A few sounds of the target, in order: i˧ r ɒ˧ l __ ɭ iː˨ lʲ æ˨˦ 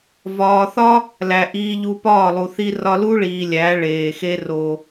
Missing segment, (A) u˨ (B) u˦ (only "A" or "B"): B